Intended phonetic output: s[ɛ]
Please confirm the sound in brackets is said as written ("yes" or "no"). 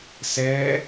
yes